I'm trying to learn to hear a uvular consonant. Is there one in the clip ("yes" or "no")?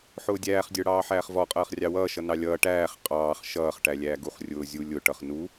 yes